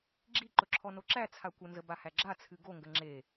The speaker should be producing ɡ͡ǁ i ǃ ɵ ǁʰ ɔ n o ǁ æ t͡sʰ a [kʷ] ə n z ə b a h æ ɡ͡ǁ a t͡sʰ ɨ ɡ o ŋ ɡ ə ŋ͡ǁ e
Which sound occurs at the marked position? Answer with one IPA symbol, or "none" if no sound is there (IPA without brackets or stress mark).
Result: kʷ